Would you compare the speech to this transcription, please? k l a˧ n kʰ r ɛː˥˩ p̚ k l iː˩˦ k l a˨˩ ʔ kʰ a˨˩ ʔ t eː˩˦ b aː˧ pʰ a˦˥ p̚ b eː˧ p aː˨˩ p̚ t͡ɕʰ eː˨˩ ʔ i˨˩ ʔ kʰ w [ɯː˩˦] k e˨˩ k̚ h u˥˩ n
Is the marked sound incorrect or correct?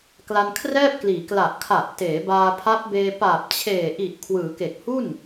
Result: correct